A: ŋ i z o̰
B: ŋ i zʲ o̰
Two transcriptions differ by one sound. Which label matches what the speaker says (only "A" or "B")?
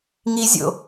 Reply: B